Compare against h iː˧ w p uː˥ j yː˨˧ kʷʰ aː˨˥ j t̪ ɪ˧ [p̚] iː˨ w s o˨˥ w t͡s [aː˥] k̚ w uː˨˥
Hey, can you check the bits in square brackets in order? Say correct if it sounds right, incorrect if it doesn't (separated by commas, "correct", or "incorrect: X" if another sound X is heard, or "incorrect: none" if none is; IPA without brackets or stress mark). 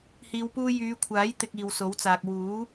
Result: incorrect: k̚, incorrect: aː˨